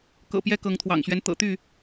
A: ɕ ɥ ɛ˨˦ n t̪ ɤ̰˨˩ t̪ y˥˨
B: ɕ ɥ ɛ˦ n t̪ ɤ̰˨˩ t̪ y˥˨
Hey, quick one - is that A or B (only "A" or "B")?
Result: B